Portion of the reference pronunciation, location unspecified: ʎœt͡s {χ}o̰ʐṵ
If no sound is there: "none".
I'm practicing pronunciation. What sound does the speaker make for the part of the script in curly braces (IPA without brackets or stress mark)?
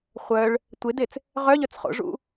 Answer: χ